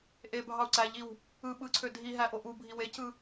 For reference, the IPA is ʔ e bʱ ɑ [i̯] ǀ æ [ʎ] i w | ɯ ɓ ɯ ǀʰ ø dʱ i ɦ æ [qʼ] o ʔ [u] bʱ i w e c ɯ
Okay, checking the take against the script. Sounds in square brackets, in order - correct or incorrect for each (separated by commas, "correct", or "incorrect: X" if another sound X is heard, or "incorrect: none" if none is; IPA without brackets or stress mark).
incorrect: u̯, correct, incorrect: ʔ, correct